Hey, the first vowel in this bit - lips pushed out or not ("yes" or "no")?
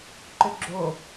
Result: yes